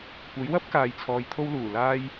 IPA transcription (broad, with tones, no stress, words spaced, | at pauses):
kʷɐ˨˥jwɐ˥p̚ kaː˨jt͡sʰɔː˨j t̪ʰo˧wluː˨˩laː˧j